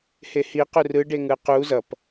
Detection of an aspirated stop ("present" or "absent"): absent